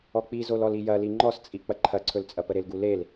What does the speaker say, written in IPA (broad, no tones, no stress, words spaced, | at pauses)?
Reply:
ɔk͡pizolɔl ijɐli ŋ͡ǃɔst͡sʼi k͡pɐǃʰɐǀʰɵlt͡sʼɐ pəɾɪlɡu lel